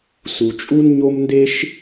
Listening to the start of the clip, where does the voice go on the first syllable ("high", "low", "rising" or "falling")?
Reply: low